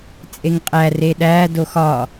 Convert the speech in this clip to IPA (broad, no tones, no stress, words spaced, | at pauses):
t͡sʼeŋqʼæ reɗæ doxɒ